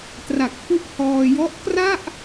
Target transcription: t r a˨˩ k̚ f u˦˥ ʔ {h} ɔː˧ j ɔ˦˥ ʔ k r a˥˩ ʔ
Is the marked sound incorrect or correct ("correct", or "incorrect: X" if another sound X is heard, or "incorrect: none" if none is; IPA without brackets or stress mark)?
correct